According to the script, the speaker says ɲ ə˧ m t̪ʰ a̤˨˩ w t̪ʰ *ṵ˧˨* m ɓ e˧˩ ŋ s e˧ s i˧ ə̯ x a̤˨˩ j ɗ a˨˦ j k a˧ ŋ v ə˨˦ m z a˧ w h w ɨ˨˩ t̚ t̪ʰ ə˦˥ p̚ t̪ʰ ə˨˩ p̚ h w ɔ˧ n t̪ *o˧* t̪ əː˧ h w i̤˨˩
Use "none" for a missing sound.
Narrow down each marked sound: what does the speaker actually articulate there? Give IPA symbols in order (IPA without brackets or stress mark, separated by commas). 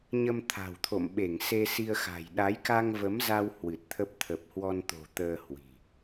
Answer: o̰˧˨, o̤˨˩